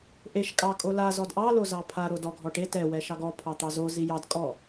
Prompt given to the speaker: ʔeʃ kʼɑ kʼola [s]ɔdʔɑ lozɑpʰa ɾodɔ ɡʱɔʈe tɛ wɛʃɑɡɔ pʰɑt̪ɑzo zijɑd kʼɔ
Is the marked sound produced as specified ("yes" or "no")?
no